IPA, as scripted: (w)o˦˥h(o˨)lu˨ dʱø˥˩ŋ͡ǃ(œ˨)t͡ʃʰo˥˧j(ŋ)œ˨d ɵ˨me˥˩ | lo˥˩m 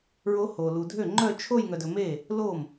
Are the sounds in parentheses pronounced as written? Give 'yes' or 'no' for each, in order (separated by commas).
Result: no, yes, no, yes